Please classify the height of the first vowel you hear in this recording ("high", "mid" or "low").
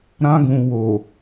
low